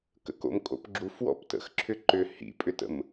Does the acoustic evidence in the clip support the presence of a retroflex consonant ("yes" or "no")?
no